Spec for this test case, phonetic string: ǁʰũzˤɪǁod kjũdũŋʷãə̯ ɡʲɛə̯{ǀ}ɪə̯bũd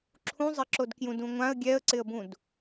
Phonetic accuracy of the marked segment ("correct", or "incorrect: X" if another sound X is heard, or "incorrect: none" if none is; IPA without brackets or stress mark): correct